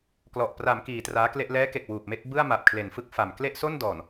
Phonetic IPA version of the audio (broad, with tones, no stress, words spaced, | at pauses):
klɔ˨˩ʔ praː˩˦mkiː˩˦ traː˦˥kle˥˩ʔ lɛː˦˥ke˨˩k̚ wuː˨˩p̚me˥˩k̚ bɯ˥˩a̯ ma˨˩p̚kʰle˨˩nfɯ˥˩k̚ fa˨˩m kle˥˩ʔso˥˩ndɔː˨˩n